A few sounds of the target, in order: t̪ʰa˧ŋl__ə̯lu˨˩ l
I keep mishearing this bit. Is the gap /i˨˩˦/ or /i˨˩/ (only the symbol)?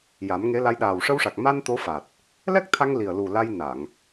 i˨˩